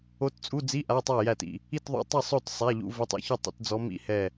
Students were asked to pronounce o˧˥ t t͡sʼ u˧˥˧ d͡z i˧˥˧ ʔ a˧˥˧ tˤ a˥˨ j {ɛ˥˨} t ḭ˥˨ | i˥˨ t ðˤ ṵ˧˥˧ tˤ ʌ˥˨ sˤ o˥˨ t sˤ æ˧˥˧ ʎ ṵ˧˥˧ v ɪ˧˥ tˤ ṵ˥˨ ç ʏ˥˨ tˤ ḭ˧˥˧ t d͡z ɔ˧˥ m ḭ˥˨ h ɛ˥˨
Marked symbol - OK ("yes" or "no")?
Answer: no